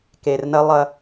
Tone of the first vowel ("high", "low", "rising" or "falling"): low